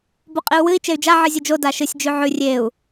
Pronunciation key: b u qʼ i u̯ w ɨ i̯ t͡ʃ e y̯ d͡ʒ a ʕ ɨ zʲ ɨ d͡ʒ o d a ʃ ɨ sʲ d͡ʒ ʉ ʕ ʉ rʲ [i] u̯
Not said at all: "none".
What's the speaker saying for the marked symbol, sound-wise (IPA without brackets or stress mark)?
e